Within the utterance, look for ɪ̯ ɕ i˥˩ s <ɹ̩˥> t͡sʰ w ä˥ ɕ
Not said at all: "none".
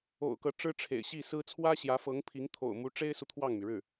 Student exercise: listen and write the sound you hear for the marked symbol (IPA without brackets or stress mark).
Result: ɹ̩˥